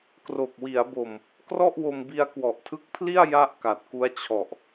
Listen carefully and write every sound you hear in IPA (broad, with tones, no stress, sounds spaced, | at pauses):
k r o˨˩ k̚ w i˩˦ a̯ b o˨˩ m | k r ɔ˥˩ ʔ w o˧ m b i˧ a̯ k w ɔ˨˩ ʔ tʰ ɯ˦˥ k̚ pʰ l i˥˩ a̯ j a˥˩ ʔ k a˨˩ t̚ k u˦˥ a̯ t͡ɕʰ ɔ˨˩ ʔ